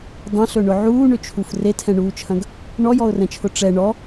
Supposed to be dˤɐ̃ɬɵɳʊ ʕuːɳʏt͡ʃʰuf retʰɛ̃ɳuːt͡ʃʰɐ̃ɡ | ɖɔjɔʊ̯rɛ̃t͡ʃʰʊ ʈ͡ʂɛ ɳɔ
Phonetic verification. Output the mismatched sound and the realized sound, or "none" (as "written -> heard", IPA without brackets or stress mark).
ɖ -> ɳ